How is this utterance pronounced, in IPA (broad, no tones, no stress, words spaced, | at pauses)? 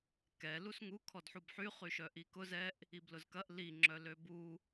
kɛ lusŋu kʰɔdħubħy χyʃœʔikʊ zɛʔ | iblʊzkɐʔ li ŋ͡ǁœløbu